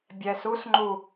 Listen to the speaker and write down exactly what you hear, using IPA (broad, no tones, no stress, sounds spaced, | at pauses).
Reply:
bʲ ɛ s u s ŋ͡ǃ u